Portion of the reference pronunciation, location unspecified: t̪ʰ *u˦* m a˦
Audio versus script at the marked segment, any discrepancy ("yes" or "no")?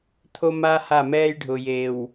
yes